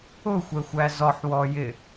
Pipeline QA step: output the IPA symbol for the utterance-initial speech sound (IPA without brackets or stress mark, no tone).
ʊ